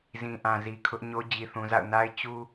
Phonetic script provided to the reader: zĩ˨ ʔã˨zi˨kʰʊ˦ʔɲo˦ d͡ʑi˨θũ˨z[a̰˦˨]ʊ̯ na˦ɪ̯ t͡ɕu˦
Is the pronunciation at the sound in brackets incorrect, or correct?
correct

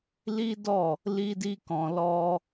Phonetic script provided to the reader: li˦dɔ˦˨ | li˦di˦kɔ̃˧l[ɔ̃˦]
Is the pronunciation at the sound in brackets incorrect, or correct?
incorrect: ɔ˦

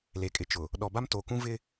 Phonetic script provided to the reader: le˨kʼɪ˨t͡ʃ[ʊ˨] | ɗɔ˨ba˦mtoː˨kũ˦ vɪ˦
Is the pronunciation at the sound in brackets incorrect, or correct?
correct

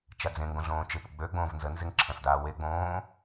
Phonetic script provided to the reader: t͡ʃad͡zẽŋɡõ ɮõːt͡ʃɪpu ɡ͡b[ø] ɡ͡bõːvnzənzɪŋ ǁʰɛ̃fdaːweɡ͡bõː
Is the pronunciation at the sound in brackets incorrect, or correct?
correct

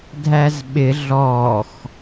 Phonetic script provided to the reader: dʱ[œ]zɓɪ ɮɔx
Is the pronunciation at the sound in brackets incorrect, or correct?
incorrect: æ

